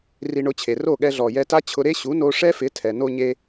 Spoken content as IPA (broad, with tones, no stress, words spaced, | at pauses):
ri˧ɳʊ˧t͡ɕʰe˩ro˥˩ ɠɛ˧ɮɔ˩ jɛ˧ta˥t͡ɕʰʊ˧ɾe˥ ɕu˩˥no˧ ʂɛ˥fɪ˩˥ tʰɛ˩no˧ ɲe˧